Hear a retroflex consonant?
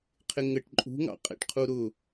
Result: yes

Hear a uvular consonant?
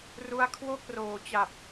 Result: no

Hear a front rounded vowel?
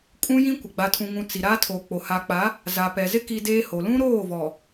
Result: no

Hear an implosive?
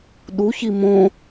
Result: yes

